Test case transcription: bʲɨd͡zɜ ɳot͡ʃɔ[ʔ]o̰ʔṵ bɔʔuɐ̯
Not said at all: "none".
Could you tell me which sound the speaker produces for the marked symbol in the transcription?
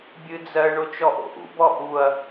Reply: ʔ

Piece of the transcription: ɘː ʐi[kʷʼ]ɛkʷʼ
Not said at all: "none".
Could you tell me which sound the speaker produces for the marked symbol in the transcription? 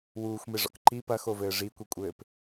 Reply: kʷ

